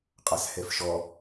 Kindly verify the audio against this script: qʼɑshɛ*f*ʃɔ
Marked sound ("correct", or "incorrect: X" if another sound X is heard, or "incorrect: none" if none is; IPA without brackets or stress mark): correct